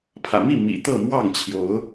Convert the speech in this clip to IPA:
pʰä̰˨˩mi˥˨ mḭ˨˩ t̪ɤ˥˨mwɑ˥˨ŋ t͡ɕʰjo˨˦ʊ̯

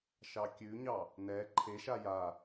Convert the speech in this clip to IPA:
ʃɑkʲʉɲɑ | nɛ ǃʰeʃa ja

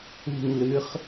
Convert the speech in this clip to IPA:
ṳ˥˧ŋlɨ˧˥χ

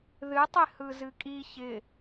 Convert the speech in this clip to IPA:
ðɨtˤɪ hɯzɨkʼi çɪ

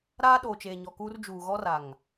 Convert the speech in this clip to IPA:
ɾaː˦ɗoː˨t͡ʃeː˨ ɲɔ˨kuː˦r d͡ʒuː˨ɣɔ˦ra˨ŋ

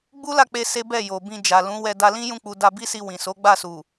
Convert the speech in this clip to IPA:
ɡ͡bu˦la˦˨k͡pe˧ se˦bɛ˦˨jo˨bĩ˧ d͡ʒa˨lũ˨˦wɛ˧ da˧lĩ˦ jũ˧k͡pu˨ da˧ bi˦si˧ wĩ˨ so˨˦ɡ͡ba˦˨ su˨

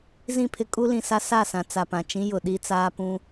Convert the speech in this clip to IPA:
zĩ˦˨pʰɪ˦ kʼu˦lĩ˨sa˦ sa˦˨sã˨ t͡sa˨pã˨t͡ʃĩ˦ jʊ˨ɗi˦t͡saː˦ pũ˦

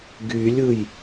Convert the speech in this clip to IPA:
ɡylʲɯj

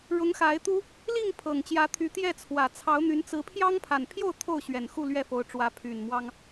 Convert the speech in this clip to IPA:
ɻʊ˨˦ŋxa˨˦ɪ̯ t̪u˦ | li˥˨ŋ pʰɤ˨˩ŋt͡ɕjä˨˦t̪ʰy˨˦ t̪jɛ˥˨ t͡sʰwä˨˩t͡sʰɑ˨˦ʊ̯n̪y˨˦n t͡sɹ̩˨˦ pʰjɑ˦ŋpʰa˨˩npʰjo˥˨ʊ̯ t̪ʰo˥˨ʊ̯ɕɥɛ˨˩n xu˥˨lɥɛ˥˨fo˨˦ʊ̯ʈ͡ʂwä˨˦ pʰy˨˩nmwɑ˦ŋ

